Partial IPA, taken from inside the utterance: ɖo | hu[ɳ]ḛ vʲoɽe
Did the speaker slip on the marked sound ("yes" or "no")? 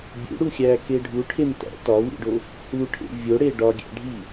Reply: yes